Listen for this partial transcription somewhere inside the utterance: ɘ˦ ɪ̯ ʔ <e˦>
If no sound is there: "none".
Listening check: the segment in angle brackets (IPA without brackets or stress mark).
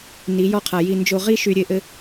ɘ˦